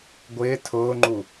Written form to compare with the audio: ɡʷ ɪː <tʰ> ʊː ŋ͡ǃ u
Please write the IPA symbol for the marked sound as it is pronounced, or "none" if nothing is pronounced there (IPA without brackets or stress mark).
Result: tʰ